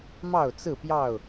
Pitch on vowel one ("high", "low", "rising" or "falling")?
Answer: falling